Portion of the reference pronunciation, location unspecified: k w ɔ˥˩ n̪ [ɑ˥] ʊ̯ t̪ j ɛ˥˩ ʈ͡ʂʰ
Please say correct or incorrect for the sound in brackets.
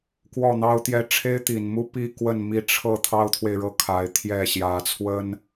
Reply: correct